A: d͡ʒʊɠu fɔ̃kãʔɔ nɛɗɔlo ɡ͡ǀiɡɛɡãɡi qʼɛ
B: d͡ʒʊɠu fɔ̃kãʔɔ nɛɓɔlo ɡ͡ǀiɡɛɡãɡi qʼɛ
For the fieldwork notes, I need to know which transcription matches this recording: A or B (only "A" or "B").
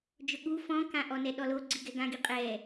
A